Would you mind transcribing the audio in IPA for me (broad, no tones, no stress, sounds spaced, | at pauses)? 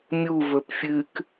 mʲ u v ɵ p fʲ ɨ k